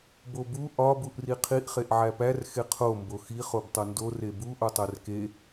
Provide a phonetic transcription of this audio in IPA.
b o b u ʔ ɒ b u ʔ r i qʰ i ʔ χ e ʔ ʕ æ p æ r x e qʰ o m b o x i χ o b tˤ o n d o r e b u ʔ o tˤ æ r k e

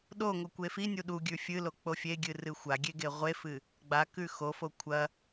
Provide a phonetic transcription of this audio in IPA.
ɗ o ŋ o kʷ e f i nʲ u ɗ u ɡʲ ʉ fʲ ɨ l o k͡p o fʲ e ɡʲ ɨ r ɨ xʷ a ɡʲ e ɡ e ʁʷ e f ɨ | ɡ͡b a k ʉ x o f o kʷʰ ɐ

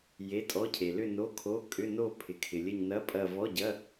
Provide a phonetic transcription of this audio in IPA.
j e˧˥˧ tʼ ɔ˧˥˧ cʰ e˨ l ʏ˥˧ n o˧˥˧ kʰ o˧˥˧ kʼ ʏ˧˥˧ n o˥˧ pʰ ɪ˨ kʰ ɪ˨ lʲ ə˥˧ ɲ n ɐ˧˥˧ pʼ ɐ˥˧ v ɔ˧˥˧ ɟ ɐ˧˥˧

